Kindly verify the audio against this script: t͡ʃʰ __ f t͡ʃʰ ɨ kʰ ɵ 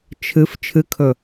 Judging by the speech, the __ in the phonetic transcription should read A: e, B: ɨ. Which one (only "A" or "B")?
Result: B